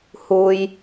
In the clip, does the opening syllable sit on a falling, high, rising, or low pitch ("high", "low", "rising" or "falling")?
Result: low